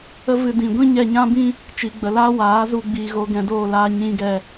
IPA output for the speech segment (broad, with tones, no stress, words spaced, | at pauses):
ə˦vɨ˧ dĩ˨ɡʷĩ˦ ɲɛ˧ɲã˦bĩ˦ | t͡ʃiː˨ ɡ͡bə˨laː˦ waː˨˦zu˧ ɡ͡biː˧ɣo˦ɡɛ̃˦ doː˦˨laː˦ɲĩ˦ɡɛ˧